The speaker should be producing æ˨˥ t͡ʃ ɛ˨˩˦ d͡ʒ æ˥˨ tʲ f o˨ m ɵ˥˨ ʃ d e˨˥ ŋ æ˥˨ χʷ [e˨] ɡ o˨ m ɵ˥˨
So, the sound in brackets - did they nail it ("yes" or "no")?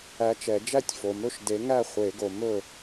no